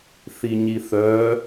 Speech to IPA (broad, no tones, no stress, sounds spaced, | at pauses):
θ i ɲ i θ œː